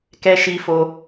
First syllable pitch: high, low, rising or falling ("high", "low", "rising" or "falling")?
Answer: high